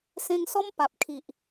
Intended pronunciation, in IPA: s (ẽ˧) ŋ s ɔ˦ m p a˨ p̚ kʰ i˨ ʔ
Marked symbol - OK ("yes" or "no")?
yes